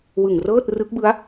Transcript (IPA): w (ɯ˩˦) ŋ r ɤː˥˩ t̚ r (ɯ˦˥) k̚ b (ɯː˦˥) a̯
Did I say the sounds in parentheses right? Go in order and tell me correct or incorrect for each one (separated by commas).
incorrect, correct, incorrect